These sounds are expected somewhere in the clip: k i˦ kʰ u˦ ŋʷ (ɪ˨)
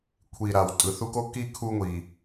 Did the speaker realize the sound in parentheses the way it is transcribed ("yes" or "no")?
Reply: no